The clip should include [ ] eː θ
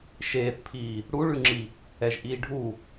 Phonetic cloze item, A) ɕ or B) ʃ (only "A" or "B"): B